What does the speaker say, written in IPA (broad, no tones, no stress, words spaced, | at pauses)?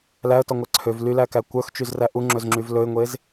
læə̯tɔŋʷæ ǀʰøv lylækæ kʷœxt͡ʃyzræ ʔuŋ͡ǁɵzŋ͡ǁyv lɵɪ̯ŋʷez